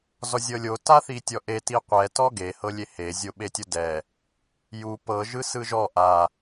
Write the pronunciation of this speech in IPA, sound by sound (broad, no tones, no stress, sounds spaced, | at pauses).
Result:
z ɔ zʲ ɤ lʲ o t a θ i tʲ ɔ ʔ e t i qʷ ɛ t ɔ ɡ e h ɤ lʲ e h e zʲ o ɓ e tʲ o d ɛ | j u p ɤ ʒ ɯ s ɯ ʒ ɔ ʔ a